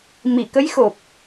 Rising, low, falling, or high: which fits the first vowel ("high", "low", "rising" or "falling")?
low